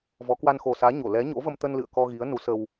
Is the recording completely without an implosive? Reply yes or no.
yes